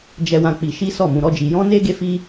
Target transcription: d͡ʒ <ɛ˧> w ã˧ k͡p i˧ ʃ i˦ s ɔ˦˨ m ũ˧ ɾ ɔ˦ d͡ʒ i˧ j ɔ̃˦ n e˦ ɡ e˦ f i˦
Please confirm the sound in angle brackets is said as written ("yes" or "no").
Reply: yes